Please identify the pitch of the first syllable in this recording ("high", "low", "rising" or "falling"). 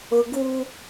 high